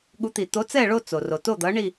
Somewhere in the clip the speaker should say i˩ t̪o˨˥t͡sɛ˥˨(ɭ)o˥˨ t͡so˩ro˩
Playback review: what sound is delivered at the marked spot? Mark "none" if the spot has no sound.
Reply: ɭ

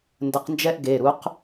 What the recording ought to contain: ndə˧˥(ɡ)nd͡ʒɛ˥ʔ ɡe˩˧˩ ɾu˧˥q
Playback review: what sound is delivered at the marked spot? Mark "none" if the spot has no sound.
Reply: q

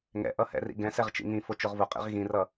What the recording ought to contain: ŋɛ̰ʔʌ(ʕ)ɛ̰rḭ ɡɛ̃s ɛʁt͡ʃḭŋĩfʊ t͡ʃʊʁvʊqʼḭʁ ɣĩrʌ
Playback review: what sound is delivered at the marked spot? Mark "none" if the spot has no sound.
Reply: h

